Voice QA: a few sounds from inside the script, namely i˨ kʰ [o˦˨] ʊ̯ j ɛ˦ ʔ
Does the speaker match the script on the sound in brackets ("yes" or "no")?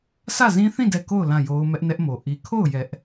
yes